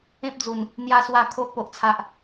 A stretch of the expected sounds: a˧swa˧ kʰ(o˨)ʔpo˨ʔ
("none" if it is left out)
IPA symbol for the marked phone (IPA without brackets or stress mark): o˦